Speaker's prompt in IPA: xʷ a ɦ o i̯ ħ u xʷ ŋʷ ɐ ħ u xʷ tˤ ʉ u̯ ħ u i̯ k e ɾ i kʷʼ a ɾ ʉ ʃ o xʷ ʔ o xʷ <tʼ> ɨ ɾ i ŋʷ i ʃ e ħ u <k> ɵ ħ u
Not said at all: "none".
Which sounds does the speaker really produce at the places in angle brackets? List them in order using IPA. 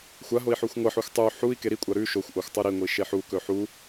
tˤ, k

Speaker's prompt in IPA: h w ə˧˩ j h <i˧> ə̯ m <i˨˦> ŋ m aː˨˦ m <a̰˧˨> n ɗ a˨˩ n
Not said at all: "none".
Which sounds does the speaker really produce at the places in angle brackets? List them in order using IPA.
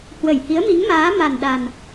i˨˦, i˨˦, a˨˩

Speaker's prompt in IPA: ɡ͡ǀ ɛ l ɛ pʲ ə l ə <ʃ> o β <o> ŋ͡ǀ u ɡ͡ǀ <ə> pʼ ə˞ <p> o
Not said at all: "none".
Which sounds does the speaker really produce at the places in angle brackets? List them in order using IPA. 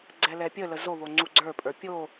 z, o, ə˞, pʲ

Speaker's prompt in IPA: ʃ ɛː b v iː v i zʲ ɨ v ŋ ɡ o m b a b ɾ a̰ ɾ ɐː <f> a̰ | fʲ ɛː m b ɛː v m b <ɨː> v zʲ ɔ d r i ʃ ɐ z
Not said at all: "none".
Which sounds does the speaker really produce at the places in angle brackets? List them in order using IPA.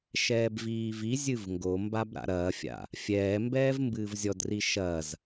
fʲ, ɨː

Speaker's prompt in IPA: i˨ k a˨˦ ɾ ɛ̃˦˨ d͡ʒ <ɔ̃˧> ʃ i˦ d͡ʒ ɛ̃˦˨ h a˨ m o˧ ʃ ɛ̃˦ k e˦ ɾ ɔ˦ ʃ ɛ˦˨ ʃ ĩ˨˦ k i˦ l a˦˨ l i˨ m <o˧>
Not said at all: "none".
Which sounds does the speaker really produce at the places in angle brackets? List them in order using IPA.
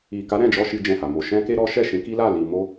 ɔ˧, o˧

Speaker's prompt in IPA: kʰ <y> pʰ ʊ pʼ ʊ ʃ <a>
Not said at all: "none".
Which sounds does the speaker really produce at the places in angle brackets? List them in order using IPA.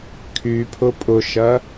y, ɐ

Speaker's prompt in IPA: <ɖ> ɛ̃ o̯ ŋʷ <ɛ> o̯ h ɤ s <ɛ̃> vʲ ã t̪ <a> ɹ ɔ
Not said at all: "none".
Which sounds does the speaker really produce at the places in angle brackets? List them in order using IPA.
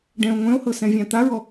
ɖ, ɛ̃, ɛ̃, a

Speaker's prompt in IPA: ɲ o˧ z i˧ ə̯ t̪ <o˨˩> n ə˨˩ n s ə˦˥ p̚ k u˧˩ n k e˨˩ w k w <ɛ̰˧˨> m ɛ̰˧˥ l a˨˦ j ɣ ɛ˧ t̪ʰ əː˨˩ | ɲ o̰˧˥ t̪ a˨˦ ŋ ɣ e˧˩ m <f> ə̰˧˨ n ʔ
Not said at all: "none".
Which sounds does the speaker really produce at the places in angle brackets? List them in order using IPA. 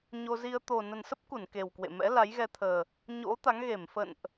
o˨˩, ḛ˧˨, f

